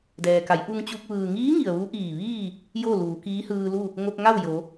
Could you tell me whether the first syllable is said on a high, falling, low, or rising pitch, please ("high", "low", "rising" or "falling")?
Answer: low